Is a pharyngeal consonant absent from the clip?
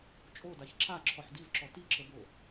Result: no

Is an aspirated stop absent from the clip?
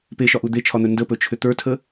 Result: no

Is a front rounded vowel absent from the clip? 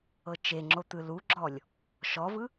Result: yes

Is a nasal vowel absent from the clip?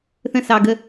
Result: no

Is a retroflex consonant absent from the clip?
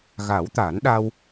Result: yes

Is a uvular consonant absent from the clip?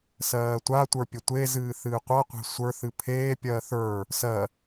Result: no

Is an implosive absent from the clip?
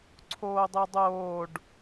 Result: yes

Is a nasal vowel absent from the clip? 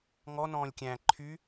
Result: no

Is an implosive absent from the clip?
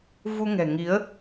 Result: yes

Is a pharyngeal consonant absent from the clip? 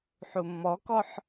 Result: no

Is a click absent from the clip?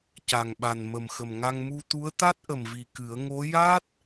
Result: yes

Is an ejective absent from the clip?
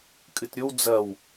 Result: no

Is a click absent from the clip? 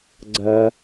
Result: no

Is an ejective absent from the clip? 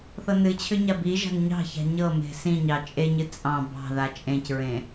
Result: no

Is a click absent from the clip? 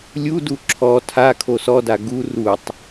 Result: no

